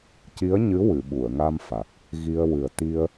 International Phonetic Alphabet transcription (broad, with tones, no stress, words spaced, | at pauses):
ci˧˥ə̯ɲɨ˧˥ wɨ˨˩˨ɓu˨˩˨ə̯ŋa˧mfa˨˩k̚ | ɣi˧ə̯ wɨ˨˩ə̯t̪i˧ə̯